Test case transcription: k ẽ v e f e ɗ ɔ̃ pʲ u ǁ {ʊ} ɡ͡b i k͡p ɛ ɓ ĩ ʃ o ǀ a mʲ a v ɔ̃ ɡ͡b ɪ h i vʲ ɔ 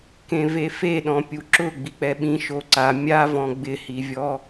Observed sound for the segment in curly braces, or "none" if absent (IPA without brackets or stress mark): ʊ